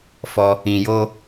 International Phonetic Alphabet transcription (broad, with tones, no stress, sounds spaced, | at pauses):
f ɔ˧ | ĩ˨ j o˧